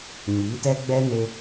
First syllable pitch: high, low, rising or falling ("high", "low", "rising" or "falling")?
rising